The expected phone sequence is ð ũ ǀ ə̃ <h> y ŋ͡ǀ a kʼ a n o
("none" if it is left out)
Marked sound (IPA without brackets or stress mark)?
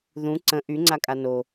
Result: ʔ